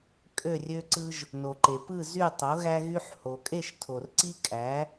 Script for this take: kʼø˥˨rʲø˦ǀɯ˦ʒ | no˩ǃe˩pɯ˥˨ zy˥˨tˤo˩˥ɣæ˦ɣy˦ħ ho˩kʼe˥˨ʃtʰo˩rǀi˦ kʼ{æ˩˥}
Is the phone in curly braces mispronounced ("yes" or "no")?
no